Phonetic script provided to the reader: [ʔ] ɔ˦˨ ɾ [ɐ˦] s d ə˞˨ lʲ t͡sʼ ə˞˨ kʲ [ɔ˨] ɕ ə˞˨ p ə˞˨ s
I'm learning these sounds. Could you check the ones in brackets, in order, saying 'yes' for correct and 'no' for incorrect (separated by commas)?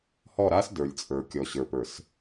no, no, yes